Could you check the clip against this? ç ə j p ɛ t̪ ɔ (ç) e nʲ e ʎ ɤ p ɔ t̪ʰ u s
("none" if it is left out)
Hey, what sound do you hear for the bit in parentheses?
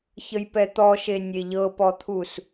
ʃ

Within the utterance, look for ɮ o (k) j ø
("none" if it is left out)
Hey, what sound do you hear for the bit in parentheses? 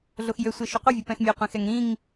x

